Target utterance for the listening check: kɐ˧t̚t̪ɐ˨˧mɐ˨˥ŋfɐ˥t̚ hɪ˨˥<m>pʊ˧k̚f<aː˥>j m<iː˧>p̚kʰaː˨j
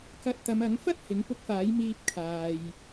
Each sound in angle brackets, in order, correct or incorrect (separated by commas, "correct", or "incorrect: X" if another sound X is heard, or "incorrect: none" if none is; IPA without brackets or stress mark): incorrect: ŋ, incorrect: aː˨˥, correct